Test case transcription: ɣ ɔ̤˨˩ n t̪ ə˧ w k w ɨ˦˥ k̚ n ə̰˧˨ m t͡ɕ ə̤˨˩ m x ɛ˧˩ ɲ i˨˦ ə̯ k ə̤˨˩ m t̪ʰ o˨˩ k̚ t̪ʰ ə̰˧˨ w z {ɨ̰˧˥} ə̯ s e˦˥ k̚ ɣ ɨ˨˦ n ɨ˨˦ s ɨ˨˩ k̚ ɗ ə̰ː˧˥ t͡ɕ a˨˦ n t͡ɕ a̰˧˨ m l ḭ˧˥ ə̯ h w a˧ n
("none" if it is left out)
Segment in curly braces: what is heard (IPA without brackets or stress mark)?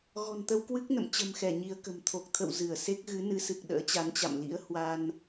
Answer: ɨ˧˩